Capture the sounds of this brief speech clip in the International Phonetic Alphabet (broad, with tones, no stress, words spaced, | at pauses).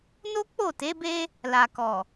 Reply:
no˦ k͡po˦˨te˨˦be˦ | la˨kɔ˨